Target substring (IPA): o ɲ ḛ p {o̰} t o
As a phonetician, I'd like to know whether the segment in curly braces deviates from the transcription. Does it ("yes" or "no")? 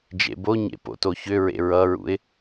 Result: no